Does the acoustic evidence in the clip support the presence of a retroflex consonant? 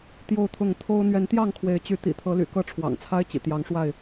yes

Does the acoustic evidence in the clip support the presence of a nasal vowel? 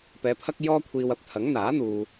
no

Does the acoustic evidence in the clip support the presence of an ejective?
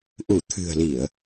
no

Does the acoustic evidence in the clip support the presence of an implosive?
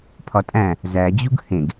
no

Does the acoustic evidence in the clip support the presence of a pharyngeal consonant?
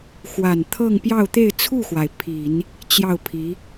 no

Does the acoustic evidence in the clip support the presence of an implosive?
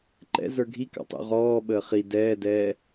yes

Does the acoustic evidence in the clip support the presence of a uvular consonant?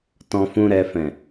no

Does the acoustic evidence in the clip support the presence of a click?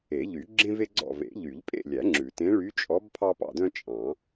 yes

